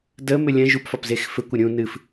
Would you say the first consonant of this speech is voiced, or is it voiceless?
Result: voiced